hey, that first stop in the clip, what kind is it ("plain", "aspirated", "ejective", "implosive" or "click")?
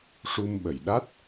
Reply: implosive